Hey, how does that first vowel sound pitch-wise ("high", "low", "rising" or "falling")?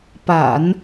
low